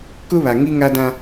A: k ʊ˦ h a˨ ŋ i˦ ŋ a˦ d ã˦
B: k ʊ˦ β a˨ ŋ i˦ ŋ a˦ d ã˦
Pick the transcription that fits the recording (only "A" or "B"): B